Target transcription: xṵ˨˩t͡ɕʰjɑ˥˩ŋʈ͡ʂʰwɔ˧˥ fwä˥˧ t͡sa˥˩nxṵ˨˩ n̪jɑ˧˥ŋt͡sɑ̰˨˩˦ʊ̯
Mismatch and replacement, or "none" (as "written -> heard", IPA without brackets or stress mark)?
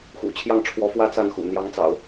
none